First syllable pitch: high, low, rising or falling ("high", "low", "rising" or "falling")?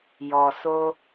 low